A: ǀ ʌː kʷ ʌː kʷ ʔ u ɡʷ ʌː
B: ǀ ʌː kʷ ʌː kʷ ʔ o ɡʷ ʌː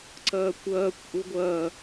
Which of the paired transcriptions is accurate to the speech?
A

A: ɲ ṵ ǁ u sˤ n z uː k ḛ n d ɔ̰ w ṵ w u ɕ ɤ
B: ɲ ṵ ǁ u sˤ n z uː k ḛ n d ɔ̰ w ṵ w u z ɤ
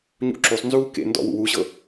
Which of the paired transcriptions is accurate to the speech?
A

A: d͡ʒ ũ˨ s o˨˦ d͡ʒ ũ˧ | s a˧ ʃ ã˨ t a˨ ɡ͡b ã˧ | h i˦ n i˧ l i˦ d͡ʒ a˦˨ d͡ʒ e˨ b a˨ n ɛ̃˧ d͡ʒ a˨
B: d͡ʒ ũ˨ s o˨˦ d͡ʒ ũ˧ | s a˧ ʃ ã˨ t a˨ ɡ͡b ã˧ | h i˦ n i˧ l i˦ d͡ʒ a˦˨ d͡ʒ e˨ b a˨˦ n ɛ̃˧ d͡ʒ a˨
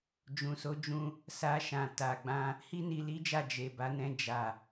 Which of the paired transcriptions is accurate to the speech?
B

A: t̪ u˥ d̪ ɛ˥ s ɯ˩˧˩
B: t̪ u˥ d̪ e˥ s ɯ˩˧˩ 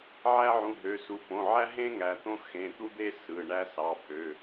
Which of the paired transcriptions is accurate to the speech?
B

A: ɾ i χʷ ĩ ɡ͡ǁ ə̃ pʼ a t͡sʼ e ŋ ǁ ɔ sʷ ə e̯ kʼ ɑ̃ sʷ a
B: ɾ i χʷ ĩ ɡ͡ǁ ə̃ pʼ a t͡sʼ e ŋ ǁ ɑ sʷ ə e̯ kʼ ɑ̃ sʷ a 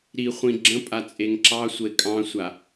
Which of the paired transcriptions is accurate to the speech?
B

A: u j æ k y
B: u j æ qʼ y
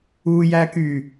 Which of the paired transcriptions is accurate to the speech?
A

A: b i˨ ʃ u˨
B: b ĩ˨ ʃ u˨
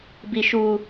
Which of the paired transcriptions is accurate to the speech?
A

